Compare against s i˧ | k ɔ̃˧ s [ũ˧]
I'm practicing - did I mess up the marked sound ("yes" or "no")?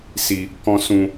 no